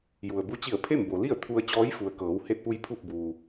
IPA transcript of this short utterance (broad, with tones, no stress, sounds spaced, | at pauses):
j u˩ ə̯ b u˧˥ t͡ɕ i˧˩ ə̯ pʰ e˥˨ m b o˩ l i˥˨ ə̯ t̪ʰ u˧ ə̯ t͡ɕ ɔː˧˥ j f u˩ ə̯ k ɤː˩˧ w h e˧ t̚ p u˧ j pʰ u˧˩ k̚ b uː˩